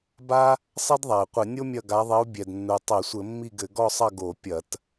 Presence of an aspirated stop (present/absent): absent